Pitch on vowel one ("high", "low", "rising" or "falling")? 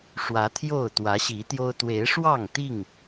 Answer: rising